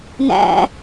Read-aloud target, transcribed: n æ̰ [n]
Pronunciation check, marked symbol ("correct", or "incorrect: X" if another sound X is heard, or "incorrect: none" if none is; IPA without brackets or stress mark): incorrect: none